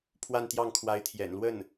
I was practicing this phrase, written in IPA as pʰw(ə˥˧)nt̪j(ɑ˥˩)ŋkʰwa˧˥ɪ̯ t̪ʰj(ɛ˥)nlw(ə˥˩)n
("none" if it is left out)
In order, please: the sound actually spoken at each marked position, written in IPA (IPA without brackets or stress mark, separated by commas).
a˥˧, ɑ˥˩, ɛ̰˨˩, ə˥˩